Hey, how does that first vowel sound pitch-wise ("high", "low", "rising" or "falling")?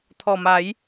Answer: low